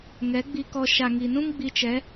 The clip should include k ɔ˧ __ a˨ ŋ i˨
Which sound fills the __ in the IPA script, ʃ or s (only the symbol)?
ʃ